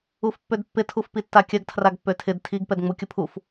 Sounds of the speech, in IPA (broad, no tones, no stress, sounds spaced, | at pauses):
u f pː ø d pː ɪ tʰ u f p i tː a kʲ ɐ ɡ tʰ r a ɡ pː ø tʰ ɪ d tʰ i ɡ p ɛ d ŋ͡m u kʲ ʊ pʰ u f